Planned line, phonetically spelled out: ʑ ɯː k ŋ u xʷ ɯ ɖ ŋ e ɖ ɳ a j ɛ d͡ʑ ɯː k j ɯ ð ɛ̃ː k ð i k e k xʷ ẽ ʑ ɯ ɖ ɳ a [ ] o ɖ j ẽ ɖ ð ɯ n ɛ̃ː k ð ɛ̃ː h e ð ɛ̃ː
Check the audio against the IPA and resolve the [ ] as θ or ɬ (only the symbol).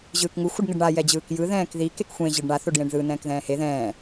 θ